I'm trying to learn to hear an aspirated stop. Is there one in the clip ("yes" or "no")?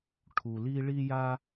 yes